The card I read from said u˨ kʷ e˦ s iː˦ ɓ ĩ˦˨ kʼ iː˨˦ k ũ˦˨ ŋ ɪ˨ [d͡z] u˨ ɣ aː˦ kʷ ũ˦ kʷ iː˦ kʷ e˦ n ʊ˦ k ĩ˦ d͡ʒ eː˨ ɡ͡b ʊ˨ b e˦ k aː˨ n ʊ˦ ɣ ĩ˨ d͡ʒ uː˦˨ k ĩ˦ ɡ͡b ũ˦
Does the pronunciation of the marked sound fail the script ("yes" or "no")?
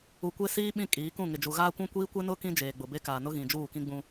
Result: yes